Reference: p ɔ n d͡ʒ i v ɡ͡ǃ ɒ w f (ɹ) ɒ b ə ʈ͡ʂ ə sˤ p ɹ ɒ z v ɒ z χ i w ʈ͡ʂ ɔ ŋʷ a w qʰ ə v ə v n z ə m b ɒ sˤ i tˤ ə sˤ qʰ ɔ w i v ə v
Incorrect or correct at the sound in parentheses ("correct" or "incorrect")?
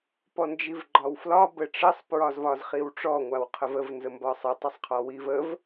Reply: incorrect